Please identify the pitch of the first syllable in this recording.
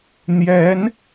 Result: rising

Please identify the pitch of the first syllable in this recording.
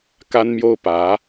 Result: high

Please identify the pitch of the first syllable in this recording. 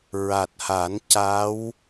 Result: low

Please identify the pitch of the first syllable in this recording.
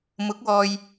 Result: rising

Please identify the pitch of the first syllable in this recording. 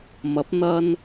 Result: rising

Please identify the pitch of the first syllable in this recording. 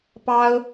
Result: high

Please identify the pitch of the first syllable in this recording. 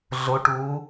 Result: rising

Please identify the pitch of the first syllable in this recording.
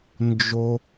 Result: high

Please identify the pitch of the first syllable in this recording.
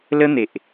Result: high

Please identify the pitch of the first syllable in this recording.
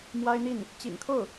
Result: high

